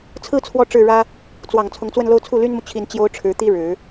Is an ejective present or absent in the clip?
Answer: absent